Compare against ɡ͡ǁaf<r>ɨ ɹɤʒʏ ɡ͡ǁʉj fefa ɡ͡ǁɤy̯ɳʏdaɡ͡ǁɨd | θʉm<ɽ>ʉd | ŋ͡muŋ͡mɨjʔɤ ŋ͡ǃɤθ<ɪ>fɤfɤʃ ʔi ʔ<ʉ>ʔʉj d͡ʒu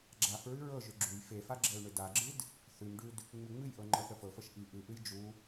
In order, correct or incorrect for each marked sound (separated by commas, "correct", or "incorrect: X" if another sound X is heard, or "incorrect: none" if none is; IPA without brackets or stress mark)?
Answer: incorrect: ɹ, incorrect: ɖ, incorrect: ə, incorrect: ɨ